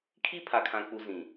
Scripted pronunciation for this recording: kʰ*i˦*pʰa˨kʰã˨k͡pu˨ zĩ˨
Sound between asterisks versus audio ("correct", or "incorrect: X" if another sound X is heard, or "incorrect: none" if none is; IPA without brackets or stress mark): correct